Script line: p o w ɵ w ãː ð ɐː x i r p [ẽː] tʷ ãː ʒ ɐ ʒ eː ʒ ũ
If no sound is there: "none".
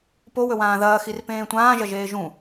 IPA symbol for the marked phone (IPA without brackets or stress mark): ẽː